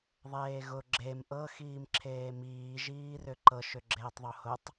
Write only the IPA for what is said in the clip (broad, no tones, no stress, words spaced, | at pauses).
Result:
ðˤeːɣʊ ɡ͡ǁem ʔɤ xiːmǁʰeːmiː ʒiːrʏǃɤ ʃʏɡ͡ǁeːtˤðˤohʊtˤ